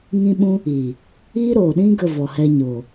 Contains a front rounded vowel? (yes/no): no